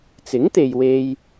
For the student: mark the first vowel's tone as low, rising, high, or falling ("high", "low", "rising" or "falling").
rising